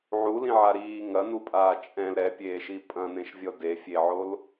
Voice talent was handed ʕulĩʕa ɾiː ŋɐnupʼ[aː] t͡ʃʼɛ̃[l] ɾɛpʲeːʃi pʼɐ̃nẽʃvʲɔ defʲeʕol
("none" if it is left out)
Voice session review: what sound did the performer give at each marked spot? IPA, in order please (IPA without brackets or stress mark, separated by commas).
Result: aː, l